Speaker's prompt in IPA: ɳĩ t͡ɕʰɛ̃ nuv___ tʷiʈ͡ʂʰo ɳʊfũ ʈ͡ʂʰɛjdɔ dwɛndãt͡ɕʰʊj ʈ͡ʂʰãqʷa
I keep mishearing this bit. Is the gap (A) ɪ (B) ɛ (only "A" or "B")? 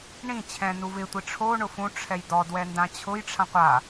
A